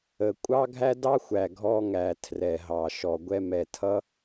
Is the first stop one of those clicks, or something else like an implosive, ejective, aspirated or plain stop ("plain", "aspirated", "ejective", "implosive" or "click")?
ejective